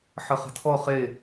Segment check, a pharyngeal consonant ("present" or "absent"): present